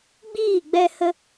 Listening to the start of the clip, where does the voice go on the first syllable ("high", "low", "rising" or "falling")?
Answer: falling